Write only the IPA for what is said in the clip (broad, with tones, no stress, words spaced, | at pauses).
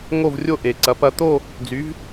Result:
ŋo˥˧vrʲo˥˧ʔe˨ǀɐ˨˦p ɐ˨˦t̪o˥˧ | d͡zy˨˦v